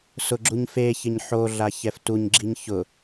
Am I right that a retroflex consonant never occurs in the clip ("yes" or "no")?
yes